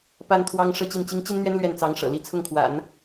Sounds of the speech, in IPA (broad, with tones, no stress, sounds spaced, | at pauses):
p a˥ n t̪ʰ w ɑ˥ ŋ ʂ ɤ˥˧ t͡ɕ i˥˩ n t͡ɕ i˥ ŋ t͡ɕ i˥ n n̪ ɥ ɛ˥ n l ɥ ɛ˥˩ n t͡s ɑ˧˥ ŋ ʂ ɤ̰˨˩ l i˧˥ t͡sʰ ʊ˥˩ ŋ kʰ w a̰˨˩˦ n